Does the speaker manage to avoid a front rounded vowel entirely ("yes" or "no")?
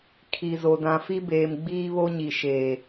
yes